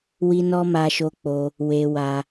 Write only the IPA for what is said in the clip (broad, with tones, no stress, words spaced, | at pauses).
wi˧nɔ˧ ma˧ʃo˧k͡po˧ | we˧ wa˧